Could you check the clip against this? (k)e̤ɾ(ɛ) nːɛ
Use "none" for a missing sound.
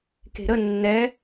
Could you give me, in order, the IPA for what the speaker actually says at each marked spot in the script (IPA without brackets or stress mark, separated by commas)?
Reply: k, ə